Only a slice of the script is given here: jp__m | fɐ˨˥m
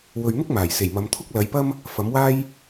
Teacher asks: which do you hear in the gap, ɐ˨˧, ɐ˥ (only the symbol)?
ɐ˥